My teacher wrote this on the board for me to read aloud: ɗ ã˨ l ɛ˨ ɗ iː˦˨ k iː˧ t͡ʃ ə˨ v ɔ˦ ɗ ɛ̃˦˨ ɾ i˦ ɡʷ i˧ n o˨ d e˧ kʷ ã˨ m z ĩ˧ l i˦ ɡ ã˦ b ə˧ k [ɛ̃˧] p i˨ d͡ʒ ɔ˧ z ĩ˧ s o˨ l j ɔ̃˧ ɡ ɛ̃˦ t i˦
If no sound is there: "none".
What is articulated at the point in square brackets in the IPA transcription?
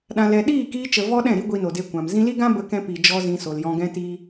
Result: ɛ̃˧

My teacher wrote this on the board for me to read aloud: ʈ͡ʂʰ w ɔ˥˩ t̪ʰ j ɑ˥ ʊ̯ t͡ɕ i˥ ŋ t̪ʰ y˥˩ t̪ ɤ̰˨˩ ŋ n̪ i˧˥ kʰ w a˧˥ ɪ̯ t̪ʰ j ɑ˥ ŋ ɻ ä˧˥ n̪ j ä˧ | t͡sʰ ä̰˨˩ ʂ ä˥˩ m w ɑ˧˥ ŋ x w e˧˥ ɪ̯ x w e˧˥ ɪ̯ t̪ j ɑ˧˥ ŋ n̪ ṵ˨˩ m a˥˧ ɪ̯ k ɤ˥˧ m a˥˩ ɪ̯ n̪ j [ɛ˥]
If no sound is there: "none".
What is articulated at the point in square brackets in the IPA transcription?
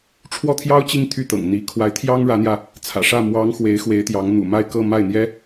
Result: ɛ˥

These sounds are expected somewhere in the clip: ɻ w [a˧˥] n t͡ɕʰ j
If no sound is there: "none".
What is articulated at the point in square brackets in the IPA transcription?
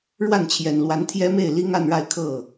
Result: a˥˩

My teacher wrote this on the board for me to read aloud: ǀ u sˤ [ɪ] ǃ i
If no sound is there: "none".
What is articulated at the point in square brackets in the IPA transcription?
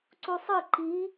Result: ɨ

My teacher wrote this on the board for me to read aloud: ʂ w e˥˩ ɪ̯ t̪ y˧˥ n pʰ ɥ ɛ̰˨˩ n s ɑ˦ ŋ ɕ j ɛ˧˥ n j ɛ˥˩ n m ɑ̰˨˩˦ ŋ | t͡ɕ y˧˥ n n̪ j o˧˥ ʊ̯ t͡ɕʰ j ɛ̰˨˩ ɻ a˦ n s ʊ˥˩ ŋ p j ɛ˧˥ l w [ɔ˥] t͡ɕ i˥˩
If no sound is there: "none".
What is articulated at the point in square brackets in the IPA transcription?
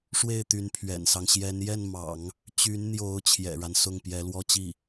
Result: ɔ˥˧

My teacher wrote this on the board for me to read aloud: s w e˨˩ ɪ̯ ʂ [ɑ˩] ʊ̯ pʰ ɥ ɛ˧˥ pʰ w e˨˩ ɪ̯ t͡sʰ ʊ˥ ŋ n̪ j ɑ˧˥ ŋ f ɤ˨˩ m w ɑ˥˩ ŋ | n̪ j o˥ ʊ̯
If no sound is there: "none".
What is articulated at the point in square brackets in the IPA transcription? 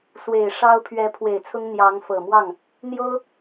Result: ɑ˥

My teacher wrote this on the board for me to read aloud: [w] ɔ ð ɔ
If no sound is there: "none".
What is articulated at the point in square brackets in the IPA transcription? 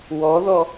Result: w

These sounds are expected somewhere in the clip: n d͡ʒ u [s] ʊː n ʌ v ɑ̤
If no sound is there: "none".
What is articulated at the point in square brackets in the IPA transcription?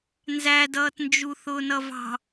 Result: θ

